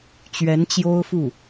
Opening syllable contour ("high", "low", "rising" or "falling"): rising